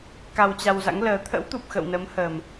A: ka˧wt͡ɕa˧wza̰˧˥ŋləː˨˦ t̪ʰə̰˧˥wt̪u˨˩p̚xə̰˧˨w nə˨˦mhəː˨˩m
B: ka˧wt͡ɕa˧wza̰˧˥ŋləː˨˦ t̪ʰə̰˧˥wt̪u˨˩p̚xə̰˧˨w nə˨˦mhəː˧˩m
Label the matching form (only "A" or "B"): A